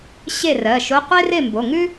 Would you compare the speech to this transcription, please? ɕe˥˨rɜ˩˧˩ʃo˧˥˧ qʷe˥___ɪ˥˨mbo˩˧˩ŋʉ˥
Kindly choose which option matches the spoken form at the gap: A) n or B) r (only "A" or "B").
B